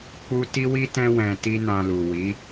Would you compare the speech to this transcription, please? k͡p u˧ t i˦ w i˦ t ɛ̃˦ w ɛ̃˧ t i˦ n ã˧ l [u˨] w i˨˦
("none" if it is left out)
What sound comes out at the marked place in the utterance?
u˨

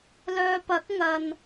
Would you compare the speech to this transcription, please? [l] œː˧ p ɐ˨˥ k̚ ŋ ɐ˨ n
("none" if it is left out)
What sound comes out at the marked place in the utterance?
l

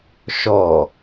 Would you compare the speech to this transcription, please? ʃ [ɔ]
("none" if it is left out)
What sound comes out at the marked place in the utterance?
ɔ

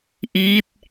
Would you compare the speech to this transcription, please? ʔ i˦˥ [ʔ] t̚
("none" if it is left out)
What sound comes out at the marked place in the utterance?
none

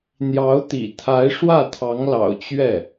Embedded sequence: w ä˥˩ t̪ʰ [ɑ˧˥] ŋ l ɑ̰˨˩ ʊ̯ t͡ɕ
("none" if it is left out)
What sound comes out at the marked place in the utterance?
ɑ˧˥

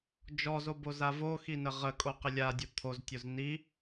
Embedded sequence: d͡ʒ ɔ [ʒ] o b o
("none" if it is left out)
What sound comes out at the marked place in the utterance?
z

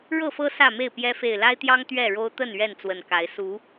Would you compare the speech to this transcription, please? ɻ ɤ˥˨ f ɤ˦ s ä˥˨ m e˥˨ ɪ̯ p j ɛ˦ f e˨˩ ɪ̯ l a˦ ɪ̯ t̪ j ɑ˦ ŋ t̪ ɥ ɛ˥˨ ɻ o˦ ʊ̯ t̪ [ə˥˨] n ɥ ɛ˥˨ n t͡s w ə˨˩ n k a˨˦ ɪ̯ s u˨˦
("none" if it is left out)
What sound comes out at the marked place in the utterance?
ə˥˨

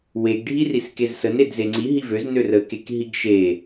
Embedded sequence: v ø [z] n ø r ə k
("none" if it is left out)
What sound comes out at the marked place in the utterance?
z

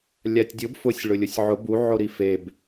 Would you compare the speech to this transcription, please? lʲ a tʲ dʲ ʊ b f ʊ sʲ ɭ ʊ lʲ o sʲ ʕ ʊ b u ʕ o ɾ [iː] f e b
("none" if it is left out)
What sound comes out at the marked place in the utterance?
i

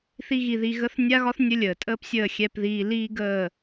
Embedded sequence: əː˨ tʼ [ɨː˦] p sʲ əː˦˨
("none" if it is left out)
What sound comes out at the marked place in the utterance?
əː˦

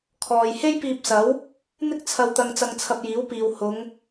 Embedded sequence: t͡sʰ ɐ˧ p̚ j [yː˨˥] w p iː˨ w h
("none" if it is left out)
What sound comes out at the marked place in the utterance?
iː˨˥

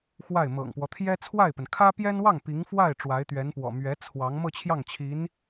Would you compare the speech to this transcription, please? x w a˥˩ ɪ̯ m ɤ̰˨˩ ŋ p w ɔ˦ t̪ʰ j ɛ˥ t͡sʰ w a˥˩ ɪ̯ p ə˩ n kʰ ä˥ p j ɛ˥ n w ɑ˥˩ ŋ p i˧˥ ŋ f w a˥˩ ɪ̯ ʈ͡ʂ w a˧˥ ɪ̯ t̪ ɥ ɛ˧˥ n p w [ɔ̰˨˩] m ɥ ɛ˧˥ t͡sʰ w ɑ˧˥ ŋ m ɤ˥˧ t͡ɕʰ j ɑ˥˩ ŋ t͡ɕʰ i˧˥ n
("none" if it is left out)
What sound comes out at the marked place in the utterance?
ɔ̰˨˩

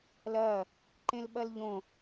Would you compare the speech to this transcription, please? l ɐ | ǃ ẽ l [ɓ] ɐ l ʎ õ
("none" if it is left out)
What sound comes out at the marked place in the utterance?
ɓ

